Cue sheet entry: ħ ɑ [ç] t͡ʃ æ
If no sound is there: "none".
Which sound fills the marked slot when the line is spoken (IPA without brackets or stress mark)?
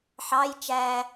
j